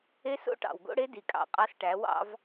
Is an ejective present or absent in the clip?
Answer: present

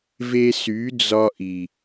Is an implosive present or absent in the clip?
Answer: absent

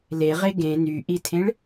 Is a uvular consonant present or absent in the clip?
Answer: present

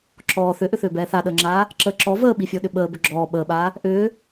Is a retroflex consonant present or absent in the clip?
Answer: absent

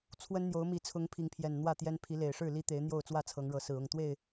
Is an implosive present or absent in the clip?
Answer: absent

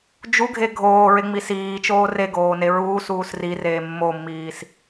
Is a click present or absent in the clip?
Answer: absent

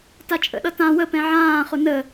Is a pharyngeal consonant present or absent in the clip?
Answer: present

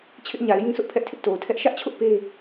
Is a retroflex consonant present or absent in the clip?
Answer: absent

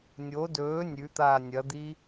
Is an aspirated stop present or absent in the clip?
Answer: absent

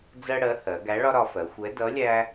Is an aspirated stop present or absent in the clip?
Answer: absent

